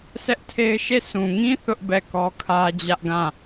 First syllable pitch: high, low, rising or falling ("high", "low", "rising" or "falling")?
high